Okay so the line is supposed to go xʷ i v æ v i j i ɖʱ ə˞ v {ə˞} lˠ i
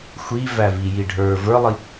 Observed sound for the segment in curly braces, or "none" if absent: ə˞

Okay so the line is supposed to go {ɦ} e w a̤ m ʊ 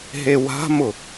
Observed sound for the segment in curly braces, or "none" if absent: ɦ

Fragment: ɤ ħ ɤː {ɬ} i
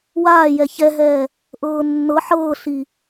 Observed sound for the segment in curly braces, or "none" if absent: ɬ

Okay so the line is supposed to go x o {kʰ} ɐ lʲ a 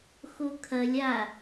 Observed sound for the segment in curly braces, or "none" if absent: kʰ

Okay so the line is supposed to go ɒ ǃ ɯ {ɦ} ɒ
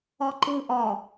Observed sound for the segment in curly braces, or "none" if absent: ʔ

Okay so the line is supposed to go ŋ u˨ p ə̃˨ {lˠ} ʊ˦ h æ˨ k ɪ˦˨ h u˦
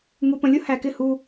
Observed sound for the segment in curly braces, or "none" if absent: lʲ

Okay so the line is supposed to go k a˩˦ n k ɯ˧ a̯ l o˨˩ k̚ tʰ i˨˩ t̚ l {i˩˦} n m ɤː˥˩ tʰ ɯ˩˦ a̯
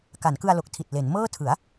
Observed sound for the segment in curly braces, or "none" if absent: e˩˦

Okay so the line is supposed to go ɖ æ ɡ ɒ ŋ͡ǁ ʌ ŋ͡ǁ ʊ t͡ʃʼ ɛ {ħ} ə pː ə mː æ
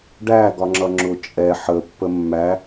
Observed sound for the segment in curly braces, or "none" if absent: ħ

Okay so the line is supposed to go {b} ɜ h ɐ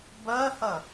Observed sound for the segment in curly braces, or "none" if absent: b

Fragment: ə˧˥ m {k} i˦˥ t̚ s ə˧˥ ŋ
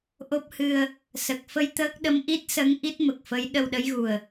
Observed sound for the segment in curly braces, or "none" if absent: ʔ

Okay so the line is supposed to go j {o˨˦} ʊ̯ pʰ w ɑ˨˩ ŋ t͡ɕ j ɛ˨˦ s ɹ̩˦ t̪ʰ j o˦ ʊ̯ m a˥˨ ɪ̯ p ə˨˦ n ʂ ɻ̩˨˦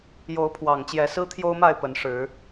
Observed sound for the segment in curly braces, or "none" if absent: o˨˦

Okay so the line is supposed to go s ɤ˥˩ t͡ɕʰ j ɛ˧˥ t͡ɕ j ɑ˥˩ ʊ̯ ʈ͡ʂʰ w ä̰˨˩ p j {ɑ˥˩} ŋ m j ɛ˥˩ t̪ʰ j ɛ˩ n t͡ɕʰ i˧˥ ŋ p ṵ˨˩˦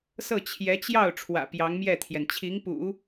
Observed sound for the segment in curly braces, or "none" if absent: ɑ˧˥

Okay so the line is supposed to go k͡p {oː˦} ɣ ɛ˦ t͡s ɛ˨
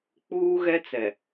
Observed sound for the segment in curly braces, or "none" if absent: uː˦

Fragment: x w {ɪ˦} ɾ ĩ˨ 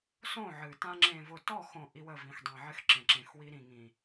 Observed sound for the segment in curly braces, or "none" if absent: i˦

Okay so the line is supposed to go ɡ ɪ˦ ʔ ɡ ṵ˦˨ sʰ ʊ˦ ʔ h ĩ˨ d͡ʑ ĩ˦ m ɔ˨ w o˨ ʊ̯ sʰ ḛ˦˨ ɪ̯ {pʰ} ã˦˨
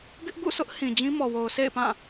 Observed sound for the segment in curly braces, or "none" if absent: p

